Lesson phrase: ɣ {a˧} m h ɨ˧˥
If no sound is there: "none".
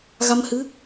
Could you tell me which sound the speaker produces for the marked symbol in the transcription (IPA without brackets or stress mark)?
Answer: a˧